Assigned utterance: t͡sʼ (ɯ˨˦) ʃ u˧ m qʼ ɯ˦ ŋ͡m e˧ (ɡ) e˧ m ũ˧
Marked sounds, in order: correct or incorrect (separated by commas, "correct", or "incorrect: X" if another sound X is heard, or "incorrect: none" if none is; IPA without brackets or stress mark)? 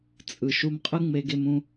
incorrect: ɯ˨, correct